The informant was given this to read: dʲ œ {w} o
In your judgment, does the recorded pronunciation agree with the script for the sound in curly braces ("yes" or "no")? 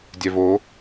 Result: no